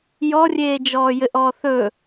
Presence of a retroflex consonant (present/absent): absent